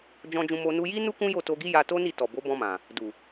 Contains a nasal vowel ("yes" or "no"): yes